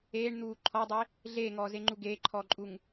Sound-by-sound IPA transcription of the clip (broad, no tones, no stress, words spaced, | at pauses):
eːɳn̪uː ǃʰɔdˤe | ɮeːŋɔːzeŋ͡ǃu ɡeːǃʰɔːǃʼuŋ